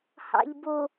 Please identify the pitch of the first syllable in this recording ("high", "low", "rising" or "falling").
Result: low